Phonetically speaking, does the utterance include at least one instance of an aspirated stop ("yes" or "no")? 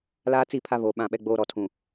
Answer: yes